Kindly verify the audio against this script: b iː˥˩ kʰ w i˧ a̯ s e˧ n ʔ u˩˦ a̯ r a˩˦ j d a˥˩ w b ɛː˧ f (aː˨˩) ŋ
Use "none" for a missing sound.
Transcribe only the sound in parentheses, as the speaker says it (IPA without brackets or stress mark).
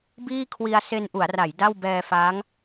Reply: aː˦˥